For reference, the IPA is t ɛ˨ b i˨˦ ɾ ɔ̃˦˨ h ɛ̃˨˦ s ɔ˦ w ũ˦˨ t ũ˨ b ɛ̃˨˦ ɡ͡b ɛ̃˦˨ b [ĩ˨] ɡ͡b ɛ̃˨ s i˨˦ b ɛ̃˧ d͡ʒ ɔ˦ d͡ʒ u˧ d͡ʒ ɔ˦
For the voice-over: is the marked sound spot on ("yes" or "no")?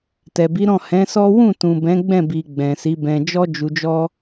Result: no